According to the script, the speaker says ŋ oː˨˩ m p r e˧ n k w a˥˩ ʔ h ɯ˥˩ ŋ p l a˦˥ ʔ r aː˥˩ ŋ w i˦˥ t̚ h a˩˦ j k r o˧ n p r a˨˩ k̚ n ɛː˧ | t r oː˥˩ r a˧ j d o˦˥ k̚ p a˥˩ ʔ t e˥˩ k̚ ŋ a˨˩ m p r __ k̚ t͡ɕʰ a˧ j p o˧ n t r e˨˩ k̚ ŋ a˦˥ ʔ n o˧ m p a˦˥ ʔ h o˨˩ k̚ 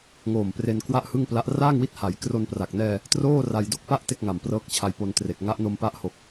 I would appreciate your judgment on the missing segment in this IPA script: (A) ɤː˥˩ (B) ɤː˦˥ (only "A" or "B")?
B